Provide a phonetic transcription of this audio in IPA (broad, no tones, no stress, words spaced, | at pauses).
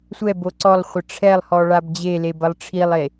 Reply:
sʷɛbo ǀɔlˠχʷɘ ʈ͡ʂʰɛlˠhɔ ɭabd͡ʑeleb ɐlˠʈ͡ʂʰilˠe